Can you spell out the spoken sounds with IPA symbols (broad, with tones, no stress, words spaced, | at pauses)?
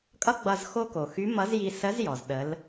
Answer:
kʼʌ˥ɡ͡bʌ˧z xo˧ko˩ xy˧˥mʌ˧˥zji˧ sə˧˥zjɔ˩z ɗə˩˧l